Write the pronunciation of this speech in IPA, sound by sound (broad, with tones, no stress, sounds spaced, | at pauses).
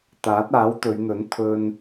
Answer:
t̪ aː˨˥ t̚ aː˨˥ w t̪ ɵ˨˧ ɥ n̪ ɵ˨˥ n t̪ʰ ɵ˧ n